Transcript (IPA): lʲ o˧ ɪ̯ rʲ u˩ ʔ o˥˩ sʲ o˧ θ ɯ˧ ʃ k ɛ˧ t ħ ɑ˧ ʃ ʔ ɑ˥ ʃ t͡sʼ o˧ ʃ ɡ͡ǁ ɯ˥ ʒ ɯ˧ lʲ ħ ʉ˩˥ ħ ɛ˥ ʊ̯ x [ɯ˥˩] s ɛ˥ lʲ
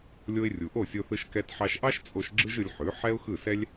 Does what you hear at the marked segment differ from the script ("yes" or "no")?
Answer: no